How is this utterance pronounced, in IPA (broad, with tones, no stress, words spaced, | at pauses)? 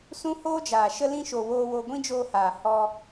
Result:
sũ˦hoː˦d͡ʒaː˨ ʃə˧lĩ˧ʃo˨ woː˧wo˧ ɡʷĩ˦d͡ʒoː˧haː˨ hɔ˧